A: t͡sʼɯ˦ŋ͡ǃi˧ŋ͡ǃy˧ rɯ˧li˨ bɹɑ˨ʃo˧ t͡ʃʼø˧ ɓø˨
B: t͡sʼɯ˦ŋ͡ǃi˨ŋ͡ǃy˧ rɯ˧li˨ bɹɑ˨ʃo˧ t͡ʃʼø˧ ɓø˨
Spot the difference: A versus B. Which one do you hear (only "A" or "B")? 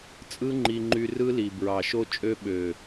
A